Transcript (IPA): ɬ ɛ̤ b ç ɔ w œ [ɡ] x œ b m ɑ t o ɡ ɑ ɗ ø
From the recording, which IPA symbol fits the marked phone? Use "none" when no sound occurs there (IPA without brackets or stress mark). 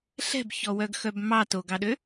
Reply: ɡ